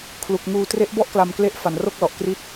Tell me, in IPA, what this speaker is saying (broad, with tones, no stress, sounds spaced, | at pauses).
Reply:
kʰ l u˨˩ k̚ ŋ uː˧ t r e˦˥ ʔ b ɔ˥˩ ʔ k l a˧ m k l e˦˥ ʔ f a˨˩ n r o˥˩ k̚ l ɔ˨˩ ʔ k r i˥˩ t̚